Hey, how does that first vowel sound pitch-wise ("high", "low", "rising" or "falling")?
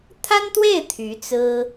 high